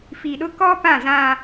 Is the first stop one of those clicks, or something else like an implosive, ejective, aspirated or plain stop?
implosive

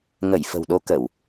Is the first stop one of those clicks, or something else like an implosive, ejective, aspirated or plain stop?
implosive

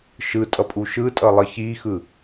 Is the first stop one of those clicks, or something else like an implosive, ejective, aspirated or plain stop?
ejective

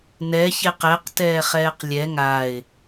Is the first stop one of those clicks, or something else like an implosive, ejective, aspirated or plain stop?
plain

